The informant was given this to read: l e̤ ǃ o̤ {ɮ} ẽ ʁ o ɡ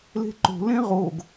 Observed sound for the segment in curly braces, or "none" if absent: l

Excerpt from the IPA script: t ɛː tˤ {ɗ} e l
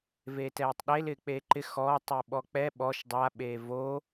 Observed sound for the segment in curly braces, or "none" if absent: ɗ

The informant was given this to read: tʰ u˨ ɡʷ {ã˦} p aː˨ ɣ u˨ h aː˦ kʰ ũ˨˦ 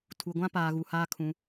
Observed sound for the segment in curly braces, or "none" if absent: ã˦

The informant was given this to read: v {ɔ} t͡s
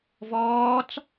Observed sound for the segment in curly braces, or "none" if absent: ɔː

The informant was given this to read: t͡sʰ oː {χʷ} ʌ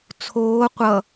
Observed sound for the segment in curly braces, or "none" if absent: qʷ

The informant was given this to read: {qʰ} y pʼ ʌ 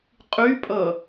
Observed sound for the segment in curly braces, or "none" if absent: qʼ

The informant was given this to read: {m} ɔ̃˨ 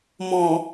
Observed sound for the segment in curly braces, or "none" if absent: m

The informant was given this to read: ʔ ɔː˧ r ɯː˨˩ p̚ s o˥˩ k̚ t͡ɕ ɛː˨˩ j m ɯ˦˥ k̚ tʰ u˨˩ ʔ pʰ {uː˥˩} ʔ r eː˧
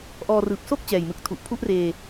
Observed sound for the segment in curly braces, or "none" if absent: u˥˩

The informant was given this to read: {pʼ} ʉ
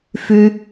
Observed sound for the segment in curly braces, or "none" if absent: f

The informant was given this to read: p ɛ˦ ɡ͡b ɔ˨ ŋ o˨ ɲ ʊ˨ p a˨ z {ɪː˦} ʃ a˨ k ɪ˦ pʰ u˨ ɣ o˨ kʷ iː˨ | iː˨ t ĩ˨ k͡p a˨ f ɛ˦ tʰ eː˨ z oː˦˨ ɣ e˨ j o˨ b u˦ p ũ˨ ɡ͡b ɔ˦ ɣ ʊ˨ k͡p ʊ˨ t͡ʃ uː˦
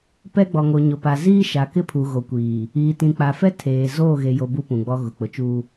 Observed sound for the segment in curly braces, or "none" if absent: iː˦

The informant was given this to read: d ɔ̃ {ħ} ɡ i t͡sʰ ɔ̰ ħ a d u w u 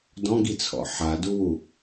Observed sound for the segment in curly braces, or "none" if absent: none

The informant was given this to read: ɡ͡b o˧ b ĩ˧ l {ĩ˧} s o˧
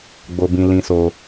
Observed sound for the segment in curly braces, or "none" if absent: ĩ˧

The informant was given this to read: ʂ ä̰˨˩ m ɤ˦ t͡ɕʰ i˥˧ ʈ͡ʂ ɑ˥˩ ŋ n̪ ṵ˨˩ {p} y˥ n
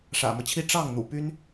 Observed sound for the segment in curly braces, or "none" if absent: p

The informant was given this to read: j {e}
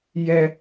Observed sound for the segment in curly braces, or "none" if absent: ɛ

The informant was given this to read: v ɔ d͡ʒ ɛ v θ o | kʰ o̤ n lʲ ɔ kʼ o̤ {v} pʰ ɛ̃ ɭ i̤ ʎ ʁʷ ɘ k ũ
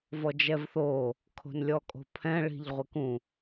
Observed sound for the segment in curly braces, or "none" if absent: none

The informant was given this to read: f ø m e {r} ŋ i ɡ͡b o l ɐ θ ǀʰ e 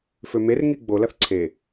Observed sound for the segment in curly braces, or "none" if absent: r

